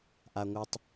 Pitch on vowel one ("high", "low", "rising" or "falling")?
low